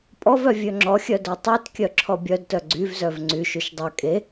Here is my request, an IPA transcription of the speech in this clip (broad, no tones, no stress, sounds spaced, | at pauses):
pʼ ɔ v œ vʲ ø ŋ͡ǁ ɔ xʲ œ d œ tˤ ø t kʲ œ ǁʰ ɔ bʲ œ d t œ ɡ͡ǀ y v z œ v ŋ͡ǀ y ʃ y ʃ dˤ œ kʼ e